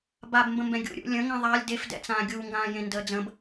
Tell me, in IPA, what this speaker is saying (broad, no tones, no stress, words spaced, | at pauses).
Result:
babmbə̃mbɛ̃ ɡʲṵ ɾʲṵ lʲə̃ŋɛ̃ ðˤalʲ defdɛ̰t͡sãː ɡʲuːŋɡãːjẽndəː d͡zə̃b